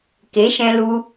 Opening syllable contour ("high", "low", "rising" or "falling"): rising